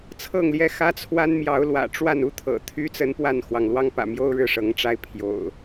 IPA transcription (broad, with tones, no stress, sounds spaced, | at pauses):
t͡sʰ ɤ˥˨ ŋ l j ɛ˥˨ x ä˦ t͡sʰ w a˦ n m j ɑ˨˦ ʊ̯ l w ä̰˨˩ ʈ͡ʂ w a˥˨ n u˦ t̪ʰ ɤ̰˨˩ t̪ʰ y˦ t͡s ə˦ n p w a˥˨ n x w ɑ˩ ŋ l w ɑ˦ ŋ p ä̰˨˩ m j o˦ ʊ̯ ɻ ɻ̩˥˨ ʂ ɤ˨˦ ŋ ʈ͡ʂ a˦ ɪ̯ pʰ j o̰˨˩ ʊ̯